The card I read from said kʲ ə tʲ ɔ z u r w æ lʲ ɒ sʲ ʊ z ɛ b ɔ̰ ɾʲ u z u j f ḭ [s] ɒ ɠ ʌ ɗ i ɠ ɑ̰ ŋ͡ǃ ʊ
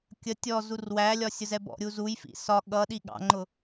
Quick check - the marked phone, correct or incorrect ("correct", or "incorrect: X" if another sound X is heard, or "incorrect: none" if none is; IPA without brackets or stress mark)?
correct